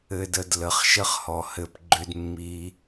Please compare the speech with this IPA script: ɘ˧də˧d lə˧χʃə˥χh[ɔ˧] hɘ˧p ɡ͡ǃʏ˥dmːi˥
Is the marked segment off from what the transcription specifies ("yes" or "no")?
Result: no